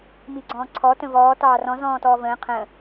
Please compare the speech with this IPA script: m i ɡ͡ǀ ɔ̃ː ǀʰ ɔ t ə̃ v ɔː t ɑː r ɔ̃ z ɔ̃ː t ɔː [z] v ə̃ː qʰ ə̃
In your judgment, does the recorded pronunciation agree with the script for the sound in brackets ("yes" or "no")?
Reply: no